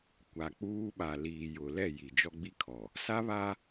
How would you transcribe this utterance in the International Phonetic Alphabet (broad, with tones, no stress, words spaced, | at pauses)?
kʷa˨ k͡puː˦ɓa˨ liː˨jʊ˨lɛ˦˨ ji˨d͡ʒɔ˦ɡ͡bi˦kʰɔ˨ | sa˦βa˦